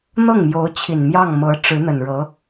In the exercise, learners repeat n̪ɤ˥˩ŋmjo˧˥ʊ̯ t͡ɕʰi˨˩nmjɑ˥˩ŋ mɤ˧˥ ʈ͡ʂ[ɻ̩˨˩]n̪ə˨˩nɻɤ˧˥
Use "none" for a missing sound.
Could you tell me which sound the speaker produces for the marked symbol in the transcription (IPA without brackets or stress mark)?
ɻ̩˧˥